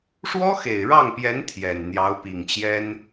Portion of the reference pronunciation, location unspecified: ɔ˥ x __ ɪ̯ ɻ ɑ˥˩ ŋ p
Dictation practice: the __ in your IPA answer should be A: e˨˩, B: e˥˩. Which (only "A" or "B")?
A